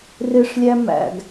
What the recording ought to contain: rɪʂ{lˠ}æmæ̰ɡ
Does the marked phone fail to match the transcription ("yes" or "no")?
yes